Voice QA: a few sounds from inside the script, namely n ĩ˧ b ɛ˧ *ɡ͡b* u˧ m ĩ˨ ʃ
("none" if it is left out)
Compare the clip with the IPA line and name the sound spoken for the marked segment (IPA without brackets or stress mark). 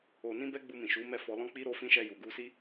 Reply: ɡ͡b